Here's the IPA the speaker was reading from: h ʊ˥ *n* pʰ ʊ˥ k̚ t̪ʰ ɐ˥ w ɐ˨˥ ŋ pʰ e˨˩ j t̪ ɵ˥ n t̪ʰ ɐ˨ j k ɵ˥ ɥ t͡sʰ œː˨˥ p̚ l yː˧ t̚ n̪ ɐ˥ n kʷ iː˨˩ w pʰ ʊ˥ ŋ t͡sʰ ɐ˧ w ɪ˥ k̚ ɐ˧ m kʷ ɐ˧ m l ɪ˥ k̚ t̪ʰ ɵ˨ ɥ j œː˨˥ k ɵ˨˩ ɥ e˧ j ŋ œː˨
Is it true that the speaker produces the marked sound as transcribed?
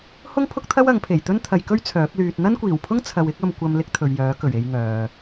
no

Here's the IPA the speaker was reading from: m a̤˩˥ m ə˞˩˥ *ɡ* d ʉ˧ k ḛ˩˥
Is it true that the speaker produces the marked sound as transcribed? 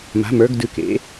yes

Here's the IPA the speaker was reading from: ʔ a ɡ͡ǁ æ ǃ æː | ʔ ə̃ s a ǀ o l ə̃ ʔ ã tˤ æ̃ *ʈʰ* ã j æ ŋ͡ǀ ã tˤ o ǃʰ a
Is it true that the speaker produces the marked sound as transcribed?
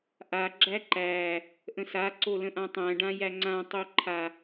no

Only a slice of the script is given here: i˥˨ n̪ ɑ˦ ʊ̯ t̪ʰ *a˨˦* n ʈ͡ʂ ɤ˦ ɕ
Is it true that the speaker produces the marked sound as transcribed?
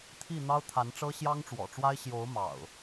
yes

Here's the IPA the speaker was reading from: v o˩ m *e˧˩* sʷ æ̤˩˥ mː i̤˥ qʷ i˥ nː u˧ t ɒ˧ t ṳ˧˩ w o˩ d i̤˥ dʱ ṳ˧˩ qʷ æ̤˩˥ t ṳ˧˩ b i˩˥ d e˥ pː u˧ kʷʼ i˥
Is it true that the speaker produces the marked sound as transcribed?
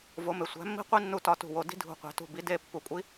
no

